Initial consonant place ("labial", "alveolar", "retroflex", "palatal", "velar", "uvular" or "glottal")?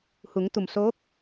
glottal